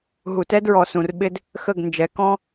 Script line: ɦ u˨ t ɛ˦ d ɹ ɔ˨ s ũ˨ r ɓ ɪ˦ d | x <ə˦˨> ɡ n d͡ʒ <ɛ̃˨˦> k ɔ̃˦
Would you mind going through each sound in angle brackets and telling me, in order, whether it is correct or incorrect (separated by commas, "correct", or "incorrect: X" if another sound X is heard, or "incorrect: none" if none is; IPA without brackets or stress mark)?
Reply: correct, incorrect: ɛ˨˦